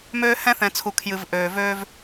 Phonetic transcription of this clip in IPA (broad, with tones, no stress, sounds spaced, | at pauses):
m øː˦ h ɛ̃˦ θ ɛ̃˨ t͡sʰ u˨ kʰ j ɨ˨ v ʔ øː˨ v øː˦ v